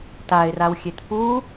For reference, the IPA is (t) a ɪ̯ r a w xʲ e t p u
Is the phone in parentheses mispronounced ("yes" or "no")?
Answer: no